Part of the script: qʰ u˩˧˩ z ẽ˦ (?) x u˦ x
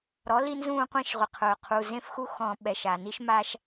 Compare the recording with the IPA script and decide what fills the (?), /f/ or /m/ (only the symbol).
f